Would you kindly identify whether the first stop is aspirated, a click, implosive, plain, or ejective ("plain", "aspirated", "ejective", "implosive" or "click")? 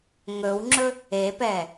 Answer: click